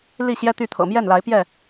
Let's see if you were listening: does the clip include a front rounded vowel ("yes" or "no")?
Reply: yes